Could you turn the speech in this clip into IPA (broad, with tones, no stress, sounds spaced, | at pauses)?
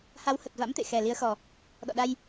h a˨˦ w h ə˨˩ t̚ v a̰˧˥ m t̪ ḛ˧˨ x ɛ˨˩ l i˨˦ ə̯ x ɔ˨˩ | ɗ ɔ̰˧˨ ɗ a˧ j